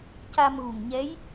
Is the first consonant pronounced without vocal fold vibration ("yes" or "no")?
yes